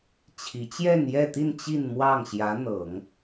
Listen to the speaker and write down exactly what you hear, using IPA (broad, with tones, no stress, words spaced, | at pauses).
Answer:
t͡ɕʰi˧˥ t͡ɕjɛ˥˧njɛ˥˧t̪i˥˧n t͡ɕi˥˧nmwɑ˥˩ŋ ɕjä˧˥ n̪ɤ˨˩˦ŋ